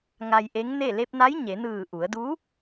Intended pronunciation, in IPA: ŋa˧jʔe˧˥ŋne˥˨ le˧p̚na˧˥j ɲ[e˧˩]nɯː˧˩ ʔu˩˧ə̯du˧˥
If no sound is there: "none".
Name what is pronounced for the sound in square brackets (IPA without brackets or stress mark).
e˩˧